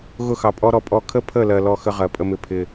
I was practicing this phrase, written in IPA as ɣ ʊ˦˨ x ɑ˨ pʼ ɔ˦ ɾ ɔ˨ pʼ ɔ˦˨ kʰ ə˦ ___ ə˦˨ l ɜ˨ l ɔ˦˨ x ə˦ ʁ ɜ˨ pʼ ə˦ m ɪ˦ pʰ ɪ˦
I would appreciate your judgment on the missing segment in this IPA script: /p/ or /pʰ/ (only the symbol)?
pʰ